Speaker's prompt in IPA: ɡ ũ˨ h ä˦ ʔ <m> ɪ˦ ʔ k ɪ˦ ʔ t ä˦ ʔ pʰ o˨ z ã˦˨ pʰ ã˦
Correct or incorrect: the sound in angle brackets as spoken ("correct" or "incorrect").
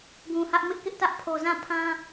correct